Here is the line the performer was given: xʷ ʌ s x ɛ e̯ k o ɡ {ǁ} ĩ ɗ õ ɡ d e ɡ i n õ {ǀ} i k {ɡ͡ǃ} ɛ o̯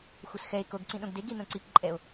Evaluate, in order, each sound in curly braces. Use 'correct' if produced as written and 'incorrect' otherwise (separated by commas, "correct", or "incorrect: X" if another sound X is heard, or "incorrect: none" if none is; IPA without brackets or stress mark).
incorrect: ǀ, correct, incorrect: ǃʼ